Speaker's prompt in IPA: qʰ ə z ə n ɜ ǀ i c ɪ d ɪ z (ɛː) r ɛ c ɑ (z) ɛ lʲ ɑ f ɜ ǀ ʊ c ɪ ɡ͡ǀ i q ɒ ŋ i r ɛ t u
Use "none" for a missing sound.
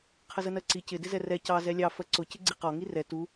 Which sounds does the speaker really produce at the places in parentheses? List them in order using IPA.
ɛ, z

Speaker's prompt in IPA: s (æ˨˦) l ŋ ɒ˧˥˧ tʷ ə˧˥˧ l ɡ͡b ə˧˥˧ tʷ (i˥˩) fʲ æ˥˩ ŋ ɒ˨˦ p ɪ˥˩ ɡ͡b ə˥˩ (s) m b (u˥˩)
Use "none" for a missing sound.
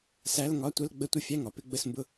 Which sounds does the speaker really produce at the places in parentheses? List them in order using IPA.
æ˧˥˧, ɪ˥˩, s, ʊ˥˩

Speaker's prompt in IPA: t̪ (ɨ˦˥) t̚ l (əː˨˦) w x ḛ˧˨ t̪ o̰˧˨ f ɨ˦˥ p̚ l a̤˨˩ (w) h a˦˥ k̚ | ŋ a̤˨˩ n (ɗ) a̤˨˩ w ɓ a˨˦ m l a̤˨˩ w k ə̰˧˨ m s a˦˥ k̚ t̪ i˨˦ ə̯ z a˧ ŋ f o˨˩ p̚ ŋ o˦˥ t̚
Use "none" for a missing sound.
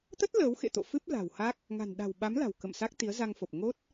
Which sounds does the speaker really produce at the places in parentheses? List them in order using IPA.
ə˦˥, əː˨˦, w, ɗ

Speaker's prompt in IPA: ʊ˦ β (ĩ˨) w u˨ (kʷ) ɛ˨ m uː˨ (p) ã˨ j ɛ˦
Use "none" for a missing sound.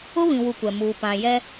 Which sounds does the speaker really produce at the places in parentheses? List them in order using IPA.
ĩ˨, kʷ, p

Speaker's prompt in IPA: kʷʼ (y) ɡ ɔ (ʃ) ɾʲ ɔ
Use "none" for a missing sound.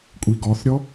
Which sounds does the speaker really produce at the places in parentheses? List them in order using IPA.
i, θ

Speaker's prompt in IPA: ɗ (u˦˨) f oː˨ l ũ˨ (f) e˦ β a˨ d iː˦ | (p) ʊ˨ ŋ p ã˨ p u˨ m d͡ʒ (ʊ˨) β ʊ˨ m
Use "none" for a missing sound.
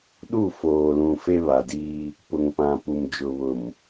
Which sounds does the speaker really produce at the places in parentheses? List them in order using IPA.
u˦˨, f, p, ʊ˨

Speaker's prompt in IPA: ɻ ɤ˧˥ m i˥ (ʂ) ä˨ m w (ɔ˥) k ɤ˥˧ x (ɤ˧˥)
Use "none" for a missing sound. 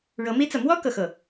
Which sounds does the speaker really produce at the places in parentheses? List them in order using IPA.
t͡s, ɔ˥, ɤ˥˩

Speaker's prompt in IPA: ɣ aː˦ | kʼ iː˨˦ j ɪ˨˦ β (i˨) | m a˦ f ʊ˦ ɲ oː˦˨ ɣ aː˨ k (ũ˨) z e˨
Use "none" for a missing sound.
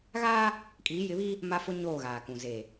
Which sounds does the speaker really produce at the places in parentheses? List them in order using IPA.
i˦, ũ˨

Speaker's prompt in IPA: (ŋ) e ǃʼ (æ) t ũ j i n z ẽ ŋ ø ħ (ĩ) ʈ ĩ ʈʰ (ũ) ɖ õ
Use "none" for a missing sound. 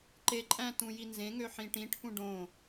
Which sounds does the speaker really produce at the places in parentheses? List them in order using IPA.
ǃ, æ̃, ĩ, ũ

